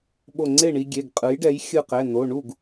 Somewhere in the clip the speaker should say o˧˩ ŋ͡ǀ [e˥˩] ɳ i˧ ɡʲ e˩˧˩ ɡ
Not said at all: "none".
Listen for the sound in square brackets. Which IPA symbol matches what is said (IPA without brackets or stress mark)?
e˥˩